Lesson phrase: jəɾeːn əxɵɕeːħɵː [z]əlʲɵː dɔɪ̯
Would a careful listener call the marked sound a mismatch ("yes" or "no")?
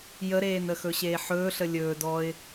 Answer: yes